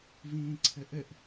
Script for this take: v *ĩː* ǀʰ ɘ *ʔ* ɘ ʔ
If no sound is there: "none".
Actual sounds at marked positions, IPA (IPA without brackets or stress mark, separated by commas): ĩː, ʔ